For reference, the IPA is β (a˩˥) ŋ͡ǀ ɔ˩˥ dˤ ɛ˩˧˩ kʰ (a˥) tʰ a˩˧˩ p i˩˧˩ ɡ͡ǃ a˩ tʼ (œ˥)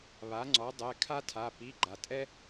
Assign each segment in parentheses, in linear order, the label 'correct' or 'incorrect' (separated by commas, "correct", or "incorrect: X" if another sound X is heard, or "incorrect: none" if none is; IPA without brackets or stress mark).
correct, correct, incorrect: ɛ˥